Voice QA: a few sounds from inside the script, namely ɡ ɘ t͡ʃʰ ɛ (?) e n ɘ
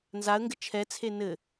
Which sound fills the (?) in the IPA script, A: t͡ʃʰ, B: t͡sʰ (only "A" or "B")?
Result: B